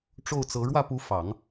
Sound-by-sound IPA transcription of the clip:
ʈ͡ʂ o˥˩ ʊ̯ t͡s ɤ˧˥ ɻ w ä˥˩ p u˧˥ f ɑ˨˩˦ ŋ

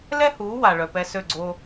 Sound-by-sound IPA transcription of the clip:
l ɛ˥ h uː˩˥ w a˩ ɭ œ˩ p ɛ˧ s ø˥˩ ɡ͡ǀ o˧

